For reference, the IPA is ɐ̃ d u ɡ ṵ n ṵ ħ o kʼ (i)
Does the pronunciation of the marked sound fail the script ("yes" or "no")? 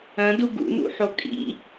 yes